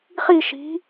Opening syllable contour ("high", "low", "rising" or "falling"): falling